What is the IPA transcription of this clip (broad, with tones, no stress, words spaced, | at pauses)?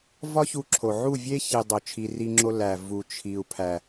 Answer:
vɒ˦çu˧ǁʰo˨ ʕu˦˨vʲe˦ çi˧dˤo˧ t͡ʃʰi˧ ri˧ŋ͡ǁo˧ læ˨ vu˨t͡ʃʰi˨u̯ pʰæ˨